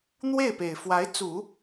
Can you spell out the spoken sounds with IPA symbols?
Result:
n̪we˥˩ɪ̯pe˨˩ɪ̯ fwa˧˥ɪ̯t͡su˨˩˦

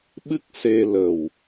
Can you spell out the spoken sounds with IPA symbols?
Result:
ɓɨ˦˥k̚se˧lə˨˩w

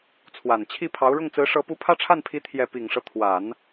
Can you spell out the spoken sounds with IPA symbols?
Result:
t͡sʰwa˨˩n t͡ɕʰi˥˩pʰɑ˧˥ʊ̯ ɻʊ˥˩ŋt͡sɹ̩˧˥ʂɤ˧˥ pu˧˥pʰä˥˧ʈ͡ʂʰa˥˩npʰi˧˥ t̪ʰjɛ˥˩ pi˨˩ŋʂɤ˦ t̪ʰwa˨˩˦n

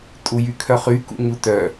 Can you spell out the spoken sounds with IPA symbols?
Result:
tʼujykʰœχy kṵɲutœ

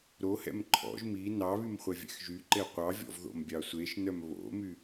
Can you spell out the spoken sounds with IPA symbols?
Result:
ɾohɛ̰m ǃʰɔ̰ʒ mi nɑβym χʷɛvʲɛ̰xʒyǃe qʷɑvʲɔ̰v ðo̰mbʲɑsʷeʃnœm βo̰my

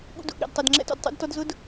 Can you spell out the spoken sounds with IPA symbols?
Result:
ɠṵ˦dṵ˨ ɠḛ˨dtˤɛ˨d ŋ͡ǁɛ̰˦to̰˨d tˤṵ˦dtɔ˦dzʊ˦d

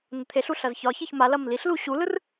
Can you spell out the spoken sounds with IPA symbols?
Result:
nət̪ʰeɬu ɬɐzçɒçiç ma lɐmliɬlu ɕulɯr

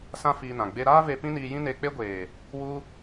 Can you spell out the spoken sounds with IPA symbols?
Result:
sã˦fiː˧nã˨ ɡ͡be˧ɾaː˦ve˧ pĩ˦niː˧ jĩ˦ne˧k͡pe˦ ɡʷeː˨ | wu˦

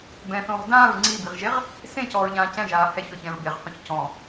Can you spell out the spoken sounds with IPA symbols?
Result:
bɛ̃θõːʁ dãːɹ ŋ͡ǀibiʁʒeʁ | sẽcɔːɹʎãː cɛ̃ʒaː hɛçɔçɛ̃ɹ beʁqõç cɔ̃

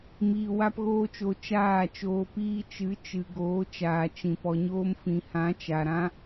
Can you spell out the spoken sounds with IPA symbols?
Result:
miː˧wa˦pɣoː˦t͡ʃo˧ t͡ʃaː˦˨t͡ʃoː˧ piː˧t͡ʃɨ˨˦t͡ʃɨ˨ ɡoː˨˦t͡ʃaː˨t͡ʃĩ˨ pɔ˨ɲoː˧mfĩ˨hã˨˦ t͡ʃa˨ɾã˦

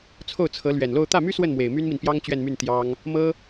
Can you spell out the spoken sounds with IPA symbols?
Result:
t͡sʰo˥˩ʊ̯t͡sʰɤ˧˥ lɥɛ˨˩nlo˥˧ʊ̯ t̪ä˥˩my˥ swə˥˩n mwe˨˩ɪ̯my˥nmi˨npjɑ˥ŋ t͡ɕɥɛ˥˧nmy˥˩n t̪jɑ˥ŋ | mɤ˥

